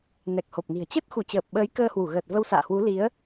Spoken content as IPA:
n ɛ˨˩ k̚ h o˨˩ p̚ n i̤˨˩ ə̯ t͡ɕ ə˦˥ t̚ x u˧˩ t͡ɕ əː˨˩ p̚ ɓ əː˨˦ j k əː˧ h w u˧˩ ɣ əː˨˩ t̚ v ə˧ w s a̰ː˧˨ h w u˨˦ l i˨˦ ə̯

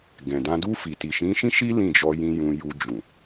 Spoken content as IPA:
ɡ ɛ̃˨ d ã˧ d u˧ f i˨ t i˨ ʃ ĩ˨˦ ʃ ĩ˦ ʃ i˦ l ĩ˦˨ d͡ʒ ɔ˧ j ĩ˧ j ũ˧ j u˧ d͡ʒ ũ˨

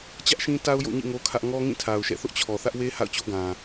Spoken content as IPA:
t͡ɕ ä˦ ʔ ʃ ĩ˦ t a˦ ʊ̯ j o̰˦˨ ɲ ḭ˦˨ ŋ o˦ kʰ ä˦ ʔ ŋ ɔ˦ ŋ ĩ˦˨ tʰ a˨ ʊ̯ ʃ ɛ̰˦˨ θ ʊ˦ ʔ t͡ɕʰ ɔ˨ θ ä˦ ʔ w e˦ h a̰˦˨ ʊ̯ t͡ɕ o˦ ɡ ã˨

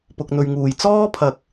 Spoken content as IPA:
p ʊ˨ k̚ n̪ ɵ˨ ɥ ŋ uː˨˩ j t͡s ɔː˥ pʰ ɐ˨ k̚

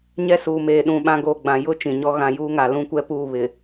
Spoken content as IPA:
ɲ ɛ˦ s uː˨ m eː˨ ɗ ũ˨ ɓ ã˦ ɡ oː˨ ɡ͡b ã˨ j ʊ˦ t͡ʃ ĩ˨ ɲ ɔ˦ ɣ ã˨ j uː˦ ŋ a˨ l ũ˦ kʷ ɛ˦ p uː˦˨ β ɪ˨

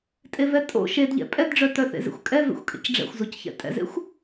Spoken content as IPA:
tʼ e v ɛ tʼ o̰ ʃ e d ʎ ɛ̰ pʼ ɛ d ɖ͡ʐ œ t œ θ ḛ z ḛ xʷ kʼ ɛ v ḛ xʷ kʼ ḛ c ɖ͡ʐ ɛ̰ xʷ z o c ç ɛ̰ tʼ ɛ̰ z ḛ xʷ

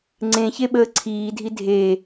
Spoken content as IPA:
ŋ͡ǀ ẽ ç e ɓ əː ǀʰ iː dʱ i dʱ e

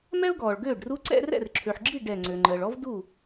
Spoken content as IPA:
m ɛ˥ ʊ̯ ɡ ɔː˩ ɭ ɡ øː˥˩ ɖ r u˧˥ ǀ ɛ̰˥ r ɛ̰˥˩ r ǁʰ ø˩ ħ ɡ͡ǁ i˥˩ ɖ ɛ˧˩ ŋ͡ǀ ø˩ ŋ͡ǃ əː˩ ɭ ɔ˥ v d u˥˩

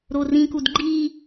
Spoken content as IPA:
ɾ o r ĩ k u d ɡ͡ǃ i

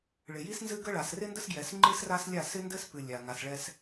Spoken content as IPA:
ɭ ɪ˨ j i˦ s n z ɨ˦ ɡ ə˦ ɭ a˨ s r ɪ˦ n d ə˦ s ɡ j ɛ˨ s ŋ͡ǃ ɨ˦ s r a˦ s lʲ a˦˨ s ɪ˦ n d ɘ˦ s p ɨ˨ lʲ a˨ ŋ a˨ s ɭ ɛ˦ s

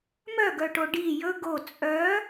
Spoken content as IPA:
m œ ɡ œ ʈ o ɖ i j ɵ ɡ o t͡sʼ œ

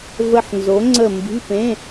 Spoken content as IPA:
v ə˦˨ ħ n z o˨˥ ŋ͡ǀ ə˦˨ m b i̤˧˥˧ p ẽ˧˥˧

